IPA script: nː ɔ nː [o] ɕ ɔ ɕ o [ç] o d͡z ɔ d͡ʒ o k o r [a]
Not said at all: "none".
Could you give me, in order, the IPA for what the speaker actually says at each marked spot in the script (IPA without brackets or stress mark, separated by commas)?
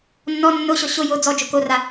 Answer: o, j, a